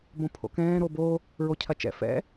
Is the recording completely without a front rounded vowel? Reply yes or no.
yes